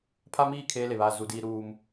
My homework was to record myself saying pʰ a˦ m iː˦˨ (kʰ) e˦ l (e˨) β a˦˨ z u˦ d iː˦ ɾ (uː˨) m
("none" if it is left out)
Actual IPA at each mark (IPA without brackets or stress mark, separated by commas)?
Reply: kʰ, e˨, uː˦